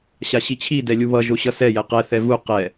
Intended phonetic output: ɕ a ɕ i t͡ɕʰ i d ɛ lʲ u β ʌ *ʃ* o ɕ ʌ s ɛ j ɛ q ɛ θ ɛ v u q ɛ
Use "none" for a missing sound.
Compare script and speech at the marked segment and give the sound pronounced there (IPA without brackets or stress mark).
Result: ʒ